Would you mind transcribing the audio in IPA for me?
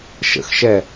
ʃ ə̰ x ʃ ɛ

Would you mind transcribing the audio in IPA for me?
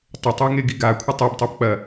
tˤ ɘ tˤ i ŋ e ɡ i ɡ a kʷʰ ɨ tˤ i b tˤ e b k͡p ɐ

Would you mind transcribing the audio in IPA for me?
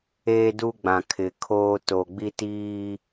eː˦ d u˦ ɡ͡b ã˨ kʰ ɪ˨ kʰ oː˦ t o˨ ɡ͡b i˦ t iː˦

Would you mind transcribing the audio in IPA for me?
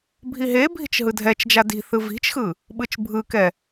bʱ i ɦ e bʱ i̤ t͡ʃ ɦ ɯ dʱ ɛ t͡ʃ d͡ʒ a d i̤ θ ɯ v i̤ t͡ʃ x ɯ | ɓ ɯ t͡ʃ bʱ ɯ k ɛ

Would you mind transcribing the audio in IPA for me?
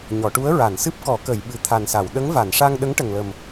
ɲ ɔ˨˩˨ ʈ u˧˥ ə̯ ɹ a˨˩˨ n s ɨ˦˥ p̚ k ɔ˨˩˦ k ə˨˩˨ j ɓ ɨ˨˩ t̪ʰ a˨˩ n s a˨˩˨ w ɗ ə˧˥ ŋ v a˨˩˨ n ʂ a˧ ŋ ɗ ə˧˥ ŋ ʈ ə˨˩ ŋ l ə˨˩ m

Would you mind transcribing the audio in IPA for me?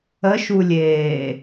ə ʃ u lʲ eː

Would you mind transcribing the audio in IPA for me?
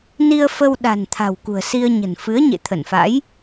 n i˧ ə̯ f ə˧ w ɗ a̤˨˩ n t̪ʰ a̤˨˩ w k ṳ˨˩ ə̯ s i˧ ə̯ ɲ ə̤˨˩ n f ɨ˨˦ ə̯ ɲ ḛ˧˨ t̪ʰ ə˧˩ n f a̰˧˥ j

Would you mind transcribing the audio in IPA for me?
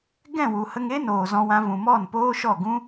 ɡ ɛ̃˦˨ w u˨ h ə˧ ŋ e˦ n oː˨ z ɔ̃˧ w ã˧ v ũ˨ m ɔ˦˨ n p oː˦ ʃ ɔ˦˨ ɡ ũ˦

